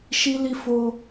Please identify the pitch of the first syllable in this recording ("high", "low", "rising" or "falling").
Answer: high